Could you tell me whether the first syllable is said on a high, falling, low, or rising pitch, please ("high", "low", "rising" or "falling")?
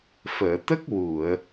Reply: low